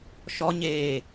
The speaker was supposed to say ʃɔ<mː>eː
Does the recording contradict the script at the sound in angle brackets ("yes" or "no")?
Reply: yes